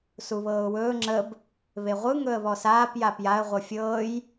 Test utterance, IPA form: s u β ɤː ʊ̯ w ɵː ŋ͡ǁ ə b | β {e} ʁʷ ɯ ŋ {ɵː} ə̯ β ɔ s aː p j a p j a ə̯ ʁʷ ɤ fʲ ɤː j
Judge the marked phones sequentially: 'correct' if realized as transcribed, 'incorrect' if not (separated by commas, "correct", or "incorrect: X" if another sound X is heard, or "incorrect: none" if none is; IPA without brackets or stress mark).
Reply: correct, incorrect: ɵ